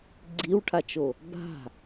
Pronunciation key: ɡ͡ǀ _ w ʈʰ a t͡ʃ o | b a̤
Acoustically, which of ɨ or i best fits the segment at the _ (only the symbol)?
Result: i